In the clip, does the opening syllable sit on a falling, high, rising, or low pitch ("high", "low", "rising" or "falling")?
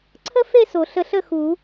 high